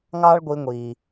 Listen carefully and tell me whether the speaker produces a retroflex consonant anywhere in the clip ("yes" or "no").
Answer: yes